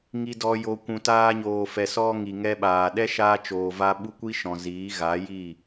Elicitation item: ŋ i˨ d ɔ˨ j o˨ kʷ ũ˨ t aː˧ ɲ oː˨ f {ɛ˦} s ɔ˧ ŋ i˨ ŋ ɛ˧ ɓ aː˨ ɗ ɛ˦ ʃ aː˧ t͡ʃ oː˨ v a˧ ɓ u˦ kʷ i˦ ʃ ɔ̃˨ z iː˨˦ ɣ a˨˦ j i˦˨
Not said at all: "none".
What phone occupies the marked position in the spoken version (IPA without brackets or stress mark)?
ɛ˨